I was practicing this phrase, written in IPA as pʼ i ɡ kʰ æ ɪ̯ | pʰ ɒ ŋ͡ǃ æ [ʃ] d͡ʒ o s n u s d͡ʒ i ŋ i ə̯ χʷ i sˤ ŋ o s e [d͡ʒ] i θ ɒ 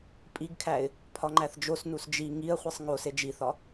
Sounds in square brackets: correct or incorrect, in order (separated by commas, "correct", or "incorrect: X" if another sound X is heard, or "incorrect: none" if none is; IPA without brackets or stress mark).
incorrect: θ, correct